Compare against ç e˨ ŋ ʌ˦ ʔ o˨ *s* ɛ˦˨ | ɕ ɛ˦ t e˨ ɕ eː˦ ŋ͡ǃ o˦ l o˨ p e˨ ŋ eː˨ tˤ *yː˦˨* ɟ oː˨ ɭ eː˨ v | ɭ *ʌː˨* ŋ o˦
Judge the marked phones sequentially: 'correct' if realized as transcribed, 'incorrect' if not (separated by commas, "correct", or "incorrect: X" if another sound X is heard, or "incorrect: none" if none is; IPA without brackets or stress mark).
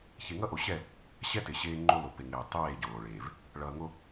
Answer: incorrect: ɕ, incorrect: eː˦˨, correct